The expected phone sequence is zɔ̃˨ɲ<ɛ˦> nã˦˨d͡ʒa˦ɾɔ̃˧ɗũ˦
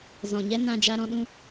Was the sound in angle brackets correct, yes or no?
yes